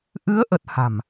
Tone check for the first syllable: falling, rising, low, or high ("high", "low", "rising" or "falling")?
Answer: rising